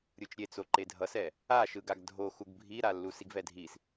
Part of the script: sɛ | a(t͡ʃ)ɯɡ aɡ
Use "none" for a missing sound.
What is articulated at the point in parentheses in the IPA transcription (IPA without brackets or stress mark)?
ʃ